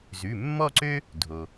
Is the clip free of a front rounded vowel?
no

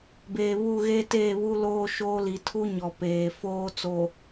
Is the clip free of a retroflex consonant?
yes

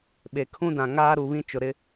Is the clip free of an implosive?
no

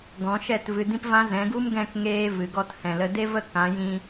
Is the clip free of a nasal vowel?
no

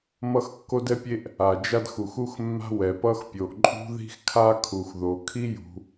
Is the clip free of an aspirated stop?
no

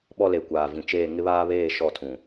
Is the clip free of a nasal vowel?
no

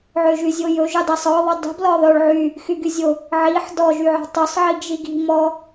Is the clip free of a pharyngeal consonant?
no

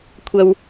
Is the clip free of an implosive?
yes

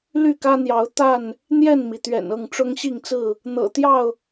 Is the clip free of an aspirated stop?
yes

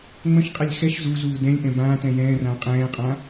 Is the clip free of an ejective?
no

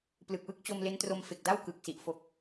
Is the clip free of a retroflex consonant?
yes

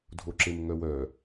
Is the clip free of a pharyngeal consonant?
yes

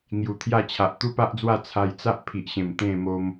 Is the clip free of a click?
yes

